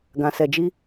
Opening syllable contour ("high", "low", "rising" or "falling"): low